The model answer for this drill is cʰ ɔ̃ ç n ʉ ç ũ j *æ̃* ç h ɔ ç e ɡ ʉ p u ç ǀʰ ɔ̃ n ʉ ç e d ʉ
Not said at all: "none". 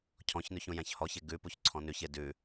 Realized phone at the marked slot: æ̃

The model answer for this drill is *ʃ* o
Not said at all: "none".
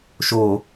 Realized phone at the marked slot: ʃ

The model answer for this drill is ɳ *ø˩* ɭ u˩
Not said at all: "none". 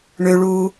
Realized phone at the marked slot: ø˩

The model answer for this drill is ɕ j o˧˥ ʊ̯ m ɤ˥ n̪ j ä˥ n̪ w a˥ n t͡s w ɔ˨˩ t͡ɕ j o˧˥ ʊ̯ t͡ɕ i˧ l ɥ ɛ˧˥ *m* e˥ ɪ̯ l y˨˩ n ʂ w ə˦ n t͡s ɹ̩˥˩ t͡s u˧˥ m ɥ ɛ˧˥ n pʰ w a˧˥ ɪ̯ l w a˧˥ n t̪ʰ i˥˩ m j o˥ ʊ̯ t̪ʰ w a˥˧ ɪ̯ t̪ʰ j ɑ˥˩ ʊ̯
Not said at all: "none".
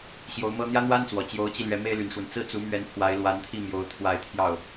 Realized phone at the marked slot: m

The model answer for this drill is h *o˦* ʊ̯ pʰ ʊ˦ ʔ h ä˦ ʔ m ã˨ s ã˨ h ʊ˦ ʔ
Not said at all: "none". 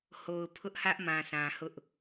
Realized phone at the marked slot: o˨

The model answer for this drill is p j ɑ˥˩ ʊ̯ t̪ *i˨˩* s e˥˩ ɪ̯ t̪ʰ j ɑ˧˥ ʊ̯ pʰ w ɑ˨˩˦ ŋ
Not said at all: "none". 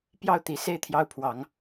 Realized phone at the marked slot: i˨˩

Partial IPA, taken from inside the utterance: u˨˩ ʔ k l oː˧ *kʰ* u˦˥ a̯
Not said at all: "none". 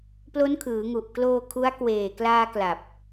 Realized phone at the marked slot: kʰ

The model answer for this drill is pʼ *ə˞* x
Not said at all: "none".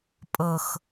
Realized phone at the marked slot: ɤ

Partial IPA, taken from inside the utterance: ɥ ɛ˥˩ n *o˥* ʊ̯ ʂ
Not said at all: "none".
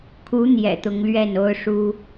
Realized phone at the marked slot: o˥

